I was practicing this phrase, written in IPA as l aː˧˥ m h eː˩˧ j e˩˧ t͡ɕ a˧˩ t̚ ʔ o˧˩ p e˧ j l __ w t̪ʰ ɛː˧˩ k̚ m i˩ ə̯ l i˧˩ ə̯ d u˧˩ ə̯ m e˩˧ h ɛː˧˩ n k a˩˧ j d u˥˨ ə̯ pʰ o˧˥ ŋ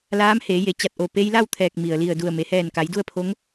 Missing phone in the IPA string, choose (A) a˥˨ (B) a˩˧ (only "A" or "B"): A